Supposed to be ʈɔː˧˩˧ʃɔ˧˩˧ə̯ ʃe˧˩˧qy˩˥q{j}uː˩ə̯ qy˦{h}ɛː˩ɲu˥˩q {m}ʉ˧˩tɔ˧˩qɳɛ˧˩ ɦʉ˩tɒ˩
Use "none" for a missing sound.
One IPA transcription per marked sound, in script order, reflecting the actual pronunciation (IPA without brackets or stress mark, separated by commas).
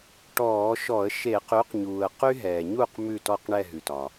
ɲ, ɦ, m